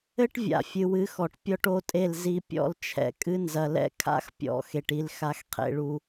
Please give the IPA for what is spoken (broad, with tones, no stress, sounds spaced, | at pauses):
ɘ˦ ʈ vʲ a̰˨ fʲ ɨ˨ w ɨ˨˦ x ɔ˨ ʈ pʲ ɔ˦ ʈ o˦ tʼ e˦˨ l z i˦ pʲ ɔ̰˦ l t͡ʃʰ ɛ̰˨ kʼ ɨ˦ n z ɐ˨ l ɛ̰˦ kʰ a̰˦ x pʲ ɔ̰˨ x e˨ ʈ i˦ l x a˦ x qʰ ḛ˦ ɭ u˦